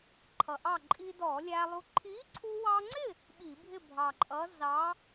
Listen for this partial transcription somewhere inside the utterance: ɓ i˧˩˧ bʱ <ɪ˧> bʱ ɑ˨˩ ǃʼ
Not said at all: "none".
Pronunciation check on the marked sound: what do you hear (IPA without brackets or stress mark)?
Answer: ɪ˥˨